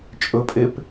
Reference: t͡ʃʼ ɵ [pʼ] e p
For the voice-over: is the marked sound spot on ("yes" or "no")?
yes